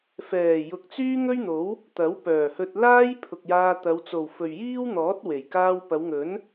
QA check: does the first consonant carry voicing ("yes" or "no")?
no